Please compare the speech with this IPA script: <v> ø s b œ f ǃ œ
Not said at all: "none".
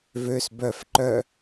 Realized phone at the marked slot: v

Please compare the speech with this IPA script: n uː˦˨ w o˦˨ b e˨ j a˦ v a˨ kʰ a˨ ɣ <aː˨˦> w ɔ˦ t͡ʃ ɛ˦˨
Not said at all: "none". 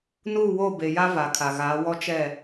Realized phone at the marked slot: aː˨˦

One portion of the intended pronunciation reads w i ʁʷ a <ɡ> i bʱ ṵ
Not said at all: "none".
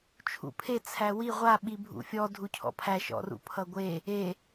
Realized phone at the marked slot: ɓ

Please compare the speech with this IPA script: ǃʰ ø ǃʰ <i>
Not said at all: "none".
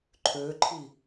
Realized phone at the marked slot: i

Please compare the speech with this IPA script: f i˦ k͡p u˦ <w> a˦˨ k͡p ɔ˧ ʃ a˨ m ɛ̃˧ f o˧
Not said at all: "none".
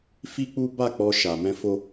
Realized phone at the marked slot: b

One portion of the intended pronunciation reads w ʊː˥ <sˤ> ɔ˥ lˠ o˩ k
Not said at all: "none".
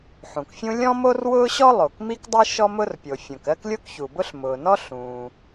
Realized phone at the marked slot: ɕ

